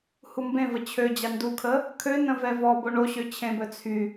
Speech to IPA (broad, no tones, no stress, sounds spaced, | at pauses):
h u m b ẽ v ə t͡ɕʰ ø d͡ʑ a n d u kʰ ə | kʰ ø n ə̃ v ɛ v ɔ b o ɳ o ɕ ø t͡ɕʰ ẽ b œ t͡sʰ y